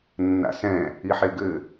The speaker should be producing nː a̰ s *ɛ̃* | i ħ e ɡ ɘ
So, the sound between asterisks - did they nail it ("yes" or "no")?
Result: yes